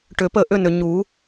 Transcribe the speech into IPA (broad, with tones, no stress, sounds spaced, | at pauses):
ʈ ʏ˨˩˦ p ə˥˩ ʔ ʏ˦ n ʏ˨ ɲ u˨˩˦